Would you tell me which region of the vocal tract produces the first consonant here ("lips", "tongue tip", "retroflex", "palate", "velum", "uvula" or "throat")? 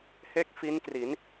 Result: throat